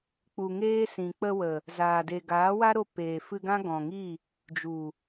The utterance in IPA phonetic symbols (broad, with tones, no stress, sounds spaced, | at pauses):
k͡p u˨ ŋ eː˦ s ĩ˨ k͡p ə˧ w ə˨ | z aː˨ d e˨ ɡ aː˨˦ w a˦ ɾ o˧ p eː˨ f ɨ˧ ɡ ã˦ ɡ ɔ̃˨ ŋ i˦˨ | d͡ʒ u˨